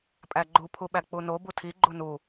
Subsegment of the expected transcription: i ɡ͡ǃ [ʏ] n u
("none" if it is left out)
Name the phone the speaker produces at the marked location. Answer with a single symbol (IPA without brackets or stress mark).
u